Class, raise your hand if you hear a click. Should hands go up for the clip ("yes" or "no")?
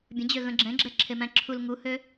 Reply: yes